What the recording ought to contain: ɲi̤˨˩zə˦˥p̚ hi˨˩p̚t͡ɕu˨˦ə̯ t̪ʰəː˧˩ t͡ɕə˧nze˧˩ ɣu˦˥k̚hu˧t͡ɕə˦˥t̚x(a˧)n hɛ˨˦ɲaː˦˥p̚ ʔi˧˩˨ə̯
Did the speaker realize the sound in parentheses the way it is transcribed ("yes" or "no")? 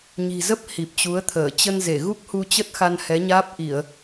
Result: yes